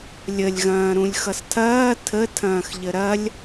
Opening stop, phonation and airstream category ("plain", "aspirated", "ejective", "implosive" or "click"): aspirated